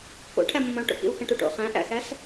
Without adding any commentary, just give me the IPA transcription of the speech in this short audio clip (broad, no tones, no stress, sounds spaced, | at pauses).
k o̰ ʈʰ æ m ə̃ m ə̃ u̯ ʈ o̰ k ḭ u̯ x ə̃ ʈ u ʈ o̰ χ æ̃ ʔ æ̰ x æ s